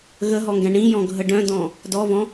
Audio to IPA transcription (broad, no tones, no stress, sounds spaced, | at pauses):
ɣ ə ɦ ɔ ŋ ɡ ɛ̃ ɳ ĩ j ɔ̃ ɡʱ ə ɖ œ̃ d ɔ̃ | d ɔ v ɔ̃